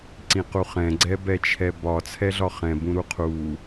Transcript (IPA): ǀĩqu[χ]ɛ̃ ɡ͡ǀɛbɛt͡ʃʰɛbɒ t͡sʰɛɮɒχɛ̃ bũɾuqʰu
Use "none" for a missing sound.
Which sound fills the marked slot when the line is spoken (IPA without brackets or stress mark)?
χ